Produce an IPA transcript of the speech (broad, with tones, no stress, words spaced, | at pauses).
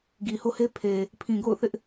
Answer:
ɡi˨ho˦he˦pʰe˨ | pʰĩ˨ɡo̰˦˨ʊ̯θɪ˦ʔ